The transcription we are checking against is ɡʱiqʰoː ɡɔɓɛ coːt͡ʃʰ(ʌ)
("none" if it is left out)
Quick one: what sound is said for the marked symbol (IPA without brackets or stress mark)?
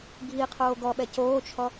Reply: ɔ